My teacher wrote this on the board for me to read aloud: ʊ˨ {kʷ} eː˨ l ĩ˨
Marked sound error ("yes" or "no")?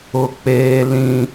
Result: yes